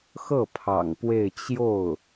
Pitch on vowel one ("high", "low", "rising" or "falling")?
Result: falling